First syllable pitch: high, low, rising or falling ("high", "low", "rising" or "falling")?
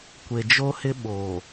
low